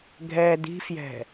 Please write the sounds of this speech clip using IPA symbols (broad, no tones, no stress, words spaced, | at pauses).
ɡʱɛ di̤fjɛ̤